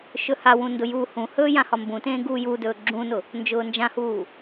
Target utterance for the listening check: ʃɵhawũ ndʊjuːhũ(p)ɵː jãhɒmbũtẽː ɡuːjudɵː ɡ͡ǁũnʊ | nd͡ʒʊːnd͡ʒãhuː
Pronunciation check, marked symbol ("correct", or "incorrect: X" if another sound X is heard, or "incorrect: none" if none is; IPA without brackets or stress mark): incorrect: h